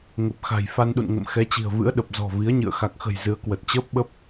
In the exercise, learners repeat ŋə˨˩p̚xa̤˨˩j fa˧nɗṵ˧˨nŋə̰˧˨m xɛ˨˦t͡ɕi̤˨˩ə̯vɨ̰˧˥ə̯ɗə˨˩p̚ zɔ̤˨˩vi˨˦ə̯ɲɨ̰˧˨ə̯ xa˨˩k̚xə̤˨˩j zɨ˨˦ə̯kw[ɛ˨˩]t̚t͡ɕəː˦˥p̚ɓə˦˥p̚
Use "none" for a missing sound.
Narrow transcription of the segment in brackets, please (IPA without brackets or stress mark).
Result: ə˨˩